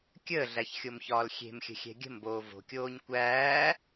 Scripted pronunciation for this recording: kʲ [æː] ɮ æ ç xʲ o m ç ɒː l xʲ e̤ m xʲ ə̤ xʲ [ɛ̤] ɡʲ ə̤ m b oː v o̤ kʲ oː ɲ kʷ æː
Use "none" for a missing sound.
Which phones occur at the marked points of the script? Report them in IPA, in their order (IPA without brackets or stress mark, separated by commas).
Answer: əː, ɛ̤